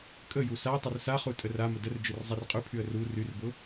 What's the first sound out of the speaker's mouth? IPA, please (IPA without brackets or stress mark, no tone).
kʼ